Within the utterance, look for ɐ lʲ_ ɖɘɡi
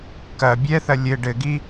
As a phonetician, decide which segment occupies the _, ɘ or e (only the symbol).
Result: ɘ